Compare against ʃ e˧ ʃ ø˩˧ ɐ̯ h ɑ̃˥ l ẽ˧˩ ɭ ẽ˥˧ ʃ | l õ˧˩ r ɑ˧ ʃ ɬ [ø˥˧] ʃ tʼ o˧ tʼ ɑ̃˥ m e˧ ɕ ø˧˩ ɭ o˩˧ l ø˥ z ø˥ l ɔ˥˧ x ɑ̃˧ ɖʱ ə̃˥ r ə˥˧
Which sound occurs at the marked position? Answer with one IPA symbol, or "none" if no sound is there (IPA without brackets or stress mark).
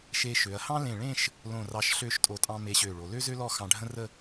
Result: ø˥˧